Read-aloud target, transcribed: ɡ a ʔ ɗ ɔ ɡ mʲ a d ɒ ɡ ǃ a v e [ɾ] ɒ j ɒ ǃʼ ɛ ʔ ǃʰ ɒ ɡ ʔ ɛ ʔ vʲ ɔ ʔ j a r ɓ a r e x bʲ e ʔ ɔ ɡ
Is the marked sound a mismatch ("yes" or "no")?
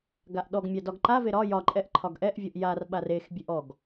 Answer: no